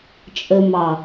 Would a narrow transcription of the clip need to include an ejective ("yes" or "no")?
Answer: yes